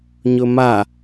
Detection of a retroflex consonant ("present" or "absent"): absent